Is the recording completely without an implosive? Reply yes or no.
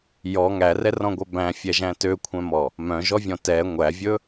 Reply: yes